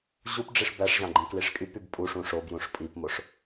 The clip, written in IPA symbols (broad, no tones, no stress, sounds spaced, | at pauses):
ʑ u p ɖ͡ʐ i ʂ b æ ʂ ʑ ɑ̃ ɡ͡ǃ ĩ k l i ʂ kʼ y p y b pʼ u ʂ ũ ʂ o b j ũ ʂ pʼ i p m o ʂ